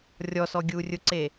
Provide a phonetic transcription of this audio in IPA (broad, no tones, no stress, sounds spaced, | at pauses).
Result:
rʲ ɔ s ɔ ɡʲ uː rʲ ʊ ǀ eː